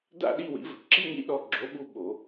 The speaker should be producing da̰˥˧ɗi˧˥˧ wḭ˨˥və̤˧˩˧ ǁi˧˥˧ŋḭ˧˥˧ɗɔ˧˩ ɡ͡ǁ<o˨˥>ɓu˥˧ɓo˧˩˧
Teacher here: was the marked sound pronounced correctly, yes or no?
yes